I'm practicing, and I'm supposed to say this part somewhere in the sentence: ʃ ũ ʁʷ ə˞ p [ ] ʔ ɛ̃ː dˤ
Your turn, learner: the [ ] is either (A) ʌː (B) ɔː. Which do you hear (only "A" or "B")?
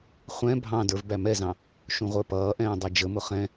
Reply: A